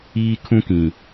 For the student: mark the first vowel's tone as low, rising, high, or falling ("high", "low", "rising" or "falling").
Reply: high